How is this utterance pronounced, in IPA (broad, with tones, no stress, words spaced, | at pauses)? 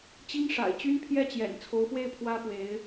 t͡ɕi˥ŋ ʂa̰˨˩ɪ̯ t͡ɕy˥npʰjɛ˥˩t͡ɕjɛ̰˨˩n t͡sʰo˧˥ʊ̯fwe˥˩ɪ̯ pʰwä˥pwe˧˥ɪ̯